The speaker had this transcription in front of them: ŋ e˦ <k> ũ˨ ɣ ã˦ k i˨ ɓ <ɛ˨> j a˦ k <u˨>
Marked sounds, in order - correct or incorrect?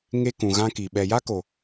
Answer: correct, correct, incorrect: o˨

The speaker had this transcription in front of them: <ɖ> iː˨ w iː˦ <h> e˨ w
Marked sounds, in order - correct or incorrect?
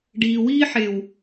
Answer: correct, incorrect: ħ

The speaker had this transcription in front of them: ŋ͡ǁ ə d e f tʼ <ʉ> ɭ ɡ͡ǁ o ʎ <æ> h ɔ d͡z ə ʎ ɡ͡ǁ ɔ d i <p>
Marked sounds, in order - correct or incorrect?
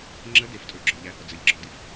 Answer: incorrect: u, correct, incorrect: f

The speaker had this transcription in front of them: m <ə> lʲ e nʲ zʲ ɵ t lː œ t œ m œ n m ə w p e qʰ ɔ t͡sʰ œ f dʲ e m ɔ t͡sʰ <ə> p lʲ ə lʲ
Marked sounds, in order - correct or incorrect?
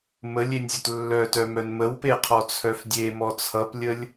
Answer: correct, incorrect: ʌ

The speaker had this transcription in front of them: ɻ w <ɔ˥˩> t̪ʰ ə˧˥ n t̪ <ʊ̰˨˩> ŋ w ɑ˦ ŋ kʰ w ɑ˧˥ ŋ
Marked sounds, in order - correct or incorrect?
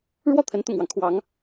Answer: correct, correct

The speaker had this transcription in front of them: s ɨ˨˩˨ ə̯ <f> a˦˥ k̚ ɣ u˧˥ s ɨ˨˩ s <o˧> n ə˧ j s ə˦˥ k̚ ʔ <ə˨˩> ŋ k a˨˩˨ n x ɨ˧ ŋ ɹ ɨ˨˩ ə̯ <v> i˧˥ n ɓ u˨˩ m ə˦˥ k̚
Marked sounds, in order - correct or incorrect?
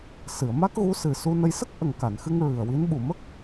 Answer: incorrect: m, incorrect: u˧, correct, incorrect: w

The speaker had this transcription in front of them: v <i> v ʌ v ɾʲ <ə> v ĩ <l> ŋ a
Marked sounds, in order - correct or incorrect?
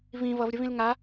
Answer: incorrect: ĩ, correct, correct

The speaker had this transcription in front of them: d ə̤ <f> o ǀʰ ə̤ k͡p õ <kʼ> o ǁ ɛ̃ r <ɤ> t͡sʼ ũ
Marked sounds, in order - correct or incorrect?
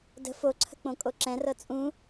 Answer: correct, correct, correct

